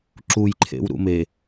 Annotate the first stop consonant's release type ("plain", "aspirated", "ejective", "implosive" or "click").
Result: click